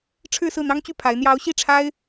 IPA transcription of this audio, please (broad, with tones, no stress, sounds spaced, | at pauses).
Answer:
ʈ͡ʂʰ ɻ̩˥˧ s ɹ̩˥˩ n̪ ɑ˥ ŋ t͡ɕ y˥˩ pʰ a˧˥ ɪ̯ n̪ j ɑ˧˥ ʊ̯ ɕ i˥˩ ʈ͡ʂʰ a˥ ɪ̯